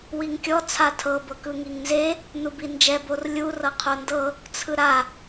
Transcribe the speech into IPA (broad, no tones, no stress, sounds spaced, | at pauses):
w i ŋ kʲ ɔ t͡sʰ a tʰ ɤ b ɤ k ɯ ŋ i ŋ n z e | n u b i n d͡ʒ ɛ b o r lʲ u r ɤ qʰ o n d ɤ | t͡sʰ ɯ ɾ a